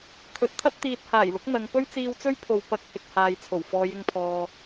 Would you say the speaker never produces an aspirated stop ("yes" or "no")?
no